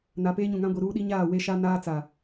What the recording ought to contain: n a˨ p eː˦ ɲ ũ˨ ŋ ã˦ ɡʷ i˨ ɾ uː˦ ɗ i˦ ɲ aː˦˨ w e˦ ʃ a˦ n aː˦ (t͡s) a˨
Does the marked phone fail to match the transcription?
no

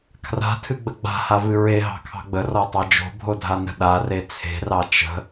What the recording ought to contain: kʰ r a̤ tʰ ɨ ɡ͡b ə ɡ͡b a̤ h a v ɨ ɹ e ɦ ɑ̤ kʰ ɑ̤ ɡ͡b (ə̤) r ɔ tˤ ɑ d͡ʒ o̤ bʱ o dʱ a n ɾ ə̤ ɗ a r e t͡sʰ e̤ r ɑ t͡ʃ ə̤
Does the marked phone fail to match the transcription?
yes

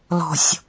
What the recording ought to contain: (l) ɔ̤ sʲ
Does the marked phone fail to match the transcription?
no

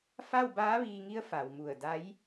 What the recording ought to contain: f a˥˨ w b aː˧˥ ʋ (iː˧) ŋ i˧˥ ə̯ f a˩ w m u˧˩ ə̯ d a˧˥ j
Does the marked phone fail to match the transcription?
no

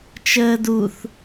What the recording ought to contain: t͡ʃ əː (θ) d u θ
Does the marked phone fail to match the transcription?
yes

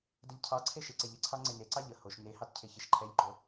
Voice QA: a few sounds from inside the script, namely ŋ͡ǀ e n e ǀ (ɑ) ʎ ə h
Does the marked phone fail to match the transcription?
no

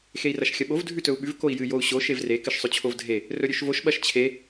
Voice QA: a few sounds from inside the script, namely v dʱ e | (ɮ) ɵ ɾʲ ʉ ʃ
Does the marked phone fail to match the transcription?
yes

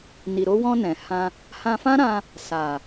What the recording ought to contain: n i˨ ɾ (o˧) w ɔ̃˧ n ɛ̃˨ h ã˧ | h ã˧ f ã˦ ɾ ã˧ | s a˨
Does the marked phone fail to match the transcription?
no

